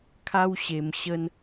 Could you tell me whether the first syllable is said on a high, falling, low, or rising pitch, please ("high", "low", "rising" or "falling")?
high